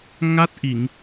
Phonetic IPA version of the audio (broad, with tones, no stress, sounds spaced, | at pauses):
ŋ a˦˥ t̚ ʔ i˨˩˨ ŋ